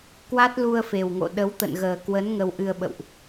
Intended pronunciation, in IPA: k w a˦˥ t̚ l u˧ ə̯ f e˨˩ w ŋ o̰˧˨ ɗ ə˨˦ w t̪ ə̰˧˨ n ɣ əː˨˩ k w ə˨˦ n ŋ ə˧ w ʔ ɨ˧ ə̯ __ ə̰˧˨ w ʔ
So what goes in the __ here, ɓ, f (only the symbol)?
ɓ